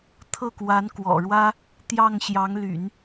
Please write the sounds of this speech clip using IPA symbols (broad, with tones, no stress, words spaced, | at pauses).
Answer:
t̪ʰɤ˥˩kwa˧˥nkwɔ̰˨˩ ɻwä˥ | t̪jɑ˥˩ŋ ɕjɑ˧˥ŋly̰˨˩˦n